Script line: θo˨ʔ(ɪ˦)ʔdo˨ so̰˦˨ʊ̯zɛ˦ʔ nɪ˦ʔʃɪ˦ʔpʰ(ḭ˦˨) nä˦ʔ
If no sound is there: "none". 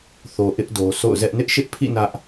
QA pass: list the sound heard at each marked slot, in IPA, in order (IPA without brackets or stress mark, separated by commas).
ɪ˦, ḭ˦˨